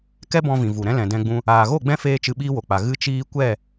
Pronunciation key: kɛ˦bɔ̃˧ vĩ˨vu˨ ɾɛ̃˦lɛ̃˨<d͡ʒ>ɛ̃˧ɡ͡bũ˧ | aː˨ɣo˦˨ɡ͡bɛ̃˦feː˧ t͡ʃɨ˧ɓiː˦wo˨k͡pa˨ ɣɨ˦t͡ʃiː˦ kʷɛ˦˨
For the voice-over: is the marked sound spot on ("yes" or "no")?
no